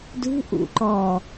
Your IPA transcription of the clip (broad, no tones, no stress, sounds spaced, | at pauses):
d ṳ ʔ ṵ ǃ ɔː